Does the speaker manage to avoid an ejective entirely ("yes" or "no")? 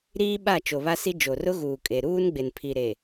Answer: no